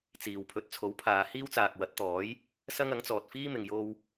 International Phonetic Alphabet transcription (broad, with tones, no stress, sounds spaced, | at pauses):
t͡s iː˨ w pʰ ɵ˨˥ t̚ t͡sʰ o˨˥ w pʰ aː˨˧ h iː˥ w t͡s aː˨ k̚ w ɐ˨˥ t̚ t̪ ɔː˨˥ j | s ɐ˥ ŋ ɐ˨˥ ŋ t͡s ɔː˨ t̚ f iː˥ m ɪ˨ ŋ j o˥ w